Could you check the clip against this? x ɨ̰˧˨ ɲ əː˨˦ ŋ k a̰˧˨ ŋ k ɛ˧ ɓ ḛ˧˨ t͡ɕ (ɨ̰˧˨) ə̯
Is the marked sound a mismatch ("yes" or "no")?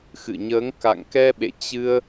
yes